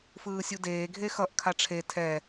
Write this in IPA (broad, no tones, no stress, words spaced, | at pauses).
fɯːsʲudeː ɡʱexʌʔ kʰaʈ͡ʂʰe tʰɛ